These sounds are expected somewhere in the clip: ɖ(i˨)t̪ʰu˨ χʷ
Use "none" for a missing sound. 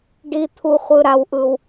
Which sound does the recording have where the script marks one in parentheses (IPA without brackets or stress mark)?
i˨